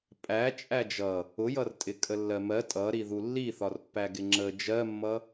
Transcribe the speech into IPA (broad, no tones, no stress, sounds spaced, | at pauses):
pʼ æ t͡ʃʼ æ d͡ʒ ʌ | ʊ j ʌ r tʼ ɪ kʼ ə lː ɜ m ɜ tʼ ʌ ɾ i ð u lː i θ ɒ r pː æ ɡ ɪ ŋ͡ǁ ə d͡ʒ ɜ mː ʌ